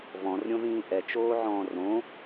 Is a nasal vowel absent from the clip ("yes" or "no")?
no